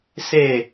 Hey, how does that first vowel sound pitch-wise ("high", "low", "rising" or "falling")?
falling